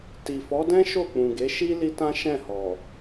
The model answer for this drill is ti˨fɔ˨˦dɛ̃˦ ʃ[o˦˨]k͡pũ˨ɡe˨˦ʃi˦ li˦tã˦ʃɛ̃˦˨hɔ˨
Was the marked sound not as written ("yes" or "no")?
no